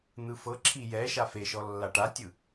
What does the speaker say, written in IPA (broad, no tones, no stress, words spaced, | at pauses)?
n̪ɯfɤǁʰi jɛ ʃafeʃɔ lːaʈatʲɯ